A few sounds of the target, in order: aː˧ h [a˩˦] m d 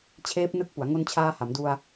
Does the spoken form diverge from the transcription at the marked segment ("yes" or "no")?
no